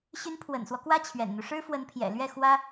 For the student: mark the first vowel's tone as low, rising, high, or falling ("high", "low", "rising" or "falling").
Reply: rising